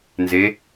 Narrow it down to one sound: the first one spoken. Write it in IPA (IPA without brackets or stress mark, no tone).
n